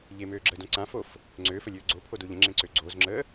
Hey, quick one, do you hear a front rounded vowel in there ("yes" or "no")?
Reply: yes